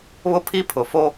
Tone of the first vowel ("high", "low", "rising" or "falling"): high